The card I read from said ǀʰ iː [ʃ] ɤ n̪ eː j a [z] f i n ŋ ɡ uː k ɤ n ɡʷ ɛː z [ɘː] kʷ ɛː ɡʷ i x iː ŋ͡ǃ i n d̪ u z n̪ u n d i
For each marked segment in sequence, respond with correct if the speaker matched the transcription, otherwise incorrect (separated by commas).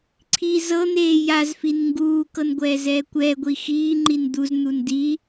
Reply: incorrect, correct, incorrect